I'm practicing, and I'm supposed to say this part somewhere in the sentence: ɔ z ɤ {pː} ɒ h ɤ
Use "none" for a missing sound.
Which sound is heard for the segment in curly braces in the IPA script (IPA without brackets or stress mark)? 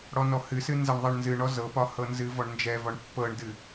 p